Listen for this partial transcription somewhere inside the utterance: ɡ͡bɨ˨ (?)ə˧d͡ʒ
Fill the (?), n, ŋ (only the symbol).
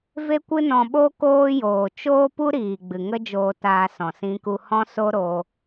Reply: ŋ